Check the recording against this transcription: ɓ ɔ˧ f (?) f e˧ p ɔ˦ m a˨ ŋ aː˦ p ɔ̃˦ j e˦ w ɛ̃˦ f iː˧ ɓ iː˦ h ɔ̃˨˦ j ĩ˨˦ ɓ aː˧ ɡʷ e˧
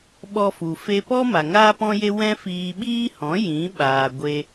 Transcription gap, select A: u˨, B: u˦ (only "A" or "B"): A